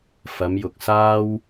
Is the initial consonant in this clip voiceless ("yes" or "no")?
yes